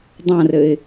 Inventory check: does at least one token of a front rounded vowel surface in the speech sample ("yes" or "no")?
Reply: no